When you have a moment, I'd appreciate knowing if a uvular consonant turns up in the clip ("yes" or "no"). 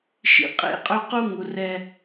yes